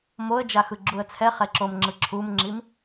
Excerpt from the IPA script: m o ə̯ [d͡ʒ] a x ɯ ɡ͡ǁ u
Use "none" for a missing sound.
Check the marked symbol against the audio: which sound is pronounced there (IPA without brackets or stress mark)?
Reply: d͡ʒ